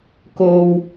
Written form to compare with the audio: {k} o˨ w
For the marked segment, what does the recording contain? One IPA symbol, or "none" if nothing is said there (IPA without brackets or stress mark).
k